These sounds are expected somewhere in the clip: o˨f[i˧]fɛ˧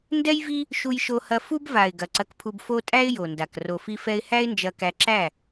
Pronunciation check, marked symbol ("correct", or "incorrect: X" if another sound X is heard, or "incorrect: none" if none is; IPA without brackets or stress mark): correct